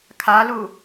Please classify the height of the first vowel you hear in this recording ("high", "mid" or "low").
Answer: low